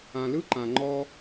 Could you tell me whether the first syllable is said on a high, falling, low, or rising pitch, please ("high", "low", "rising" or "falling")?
low